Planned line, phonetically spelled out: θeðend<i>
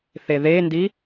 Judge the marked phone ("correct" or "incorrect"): correct